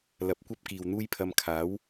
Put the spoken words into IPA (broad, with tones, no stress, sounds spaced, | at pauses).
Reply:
l ɐ˨ p̚ kʷ ɐ˥ p̚ k iː˨ w n̪ uː˥ j pʰ ɐ˧ m kʰ aː˨˥ w